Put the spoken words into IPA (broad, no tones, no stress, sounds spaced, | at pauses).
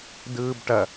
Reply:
d ɯː b ʈ ɐ